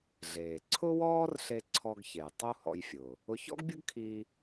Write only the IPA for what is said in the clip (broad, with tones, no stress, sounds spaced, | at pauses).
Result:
ɮ eː˩ ǀʰ ʊ˥ w ɔː˥ r ɬ e˧ ǀʰ ɔ˧ ɡ ç e˩ j tˤ u˥ h ɔ̰˧ j fʲ ʊː˩ | ʊ˧ ç ɔ̰˥ ɡ bʲ ʊ˥ ɡ kʰ iː˧